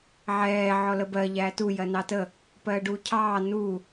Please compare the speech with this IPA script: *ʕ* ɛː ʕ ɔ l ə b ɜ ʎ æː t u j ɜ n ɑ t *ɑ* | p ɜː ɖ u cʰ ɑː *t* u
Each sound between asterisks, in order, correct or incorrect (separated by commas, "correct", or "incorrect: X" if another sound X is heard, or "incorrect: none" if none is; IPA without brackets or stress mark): correct, incorrect: ə, incorrect: n